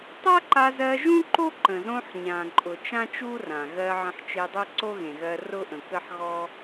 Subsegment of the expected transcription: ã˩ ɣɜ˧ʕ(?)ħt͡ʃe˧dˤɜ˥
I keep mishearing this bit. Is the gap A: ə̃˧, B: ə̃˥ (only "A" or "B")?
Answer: A